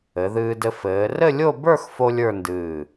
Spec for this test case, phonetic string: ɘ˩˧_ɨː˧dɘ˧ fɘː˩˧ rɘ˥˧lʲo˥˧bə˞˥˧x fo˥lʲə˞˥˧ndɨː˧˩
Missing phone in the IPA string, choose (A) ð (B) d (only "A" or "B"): A